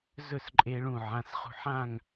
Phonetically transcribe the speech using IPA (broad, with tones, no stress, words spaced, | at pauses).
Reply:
zɵ˥˨sǃʼe˧ɭũ˧˩ ʕã˩˧˩sχṳ˧ħã˥˨ŋ